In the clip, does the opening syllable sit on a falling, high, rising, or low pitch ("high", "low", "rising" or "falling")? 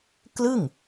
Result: falling